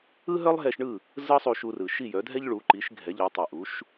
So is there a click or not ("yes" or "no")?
yes